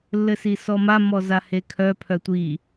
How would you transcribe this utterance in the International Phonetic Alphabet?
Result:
lː ɘ s i s ɔ m a m ɔ z a h e kʰ œ pʰ œ tʷ i

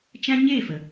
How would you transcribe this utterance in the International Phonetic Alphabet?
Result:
t͡ʃ ã˦ ɲ e˦˨ f ə˨

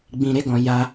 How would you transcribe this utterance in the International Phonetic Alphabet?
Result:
ɡ͡b ĩ˧ ɾ e˦ ɡ ɔ̃˧ j a˦

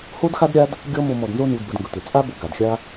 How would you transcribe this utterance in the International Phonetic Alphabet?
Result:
h o˦ d x a˦ d ɾʲ a˦ d | ɡʲ ɔ˦ m o˧ m ɔ˨ d n z o˧ n u˨ d b ə˨ d ŋ ɡ ɵ˨ t̪ ʏ˨ t͡sʼ a˦ b o˧ ɡ a˨ d xʲ a˦

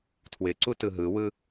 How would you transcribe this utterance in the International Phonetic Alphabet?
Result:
tʰ w ɪ ǀ u t ɯ ɦ ɯ w ɯ

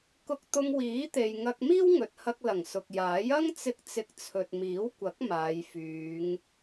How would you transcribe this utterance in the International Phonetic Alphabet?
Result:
k ʊ˧ k̚ t̪ ʊ˧ ŋ w iː˨˥ t̪ e˨ j ŋ ɐ˧ k̚ m iː˥ w ŋ ɵ˨ t̚ h ɐ˧ k̚ l ɐ˨˩ ŋ s ʊ˨ k̚ j aː˨˥ j ɐ˥ ŋ t͡s ɪ˧ k̚ t͡s ɪ˨˥ k̚ t͡sʰ ɵ˨ t̚ m iː˨˥ w kʷ ɐ˨˥ k̚ m aː˨˧ j f yː˨˧ ŋ

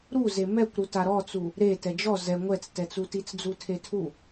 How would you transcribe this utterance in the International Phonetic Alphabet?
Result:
ɾ u z e m ɛ kʷ ɾ u t a ɾ ɔ t͡s u | ɾ e t ɛ d͡ʒ ɔ z ɛ ŋʷ ɛ t͡s t ɛ t͡s u t i t͡s d͡z u tʰ e tʰ u

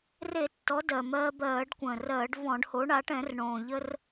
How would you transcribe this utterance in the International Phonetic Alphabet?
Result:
r e˧˩˧ tː ɔ˩˧ d ɜ˩ m ɜː˧ b ɜː˧˩˧ ɖ kʷ ə̃ː˩ r ɜː˧˩˧ ɖ v ɔ̃˧˩˧ ɖ h o˩˧ ɳ a˩˧ ʈ ɛ̃˧˩˧ r ɳ õː˩ ʎ ə˧ r

